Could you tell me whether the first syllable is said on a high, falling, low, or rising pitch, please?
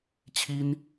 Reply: high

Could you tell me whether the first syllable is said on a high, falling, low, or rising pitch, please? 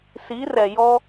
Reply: rising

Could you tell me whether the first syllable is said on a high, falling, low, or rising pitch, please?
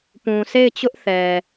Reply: low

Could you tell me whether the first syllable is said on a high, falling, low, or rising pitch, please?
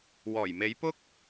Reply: low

